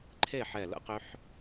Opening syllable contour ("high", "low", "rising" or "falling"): falling